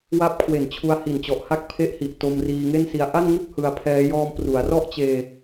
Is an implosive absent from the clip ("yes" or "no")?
yes